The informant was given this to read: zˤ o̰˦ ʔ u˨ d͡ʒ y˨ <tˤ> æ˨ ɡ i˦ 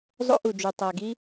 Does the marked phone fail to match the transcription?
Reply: no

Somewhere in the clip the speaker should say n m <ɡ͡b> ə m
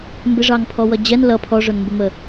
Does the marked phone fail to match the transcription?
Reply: yes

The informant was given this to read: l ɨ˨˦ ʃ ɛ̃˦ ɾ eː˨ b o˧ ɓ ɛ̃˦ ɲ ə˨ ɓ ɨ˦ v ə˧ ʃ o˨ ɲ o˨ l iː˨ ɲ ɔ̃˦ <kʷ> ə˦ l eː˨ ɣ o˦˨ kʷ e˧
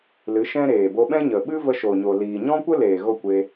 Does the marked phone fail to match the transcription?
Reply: no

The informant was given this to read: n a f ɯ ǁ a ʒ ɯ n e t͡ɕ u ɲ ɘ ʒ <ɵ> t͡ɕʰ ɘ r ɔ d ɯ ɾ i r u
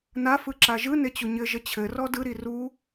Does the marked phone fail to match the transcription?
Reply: yes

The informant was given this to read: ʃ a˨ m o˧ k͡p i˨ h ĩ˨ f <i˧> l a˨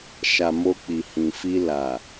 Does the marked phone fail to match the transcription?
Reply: no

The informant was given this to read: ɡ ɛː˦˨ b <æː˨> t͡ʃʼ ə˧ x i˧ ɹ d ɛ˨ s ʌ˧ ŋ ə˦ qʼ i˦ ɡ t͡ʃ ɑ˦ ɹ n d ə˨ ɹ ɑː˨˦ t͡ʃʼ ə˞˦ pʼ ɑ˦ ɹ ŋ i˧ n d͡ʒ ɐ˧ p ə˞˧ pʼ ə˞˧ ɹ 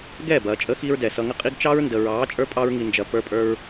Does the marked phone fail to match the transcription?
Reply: yes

